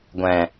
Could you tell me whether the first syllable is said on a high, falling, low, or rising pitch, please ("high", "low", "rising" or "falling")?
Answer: low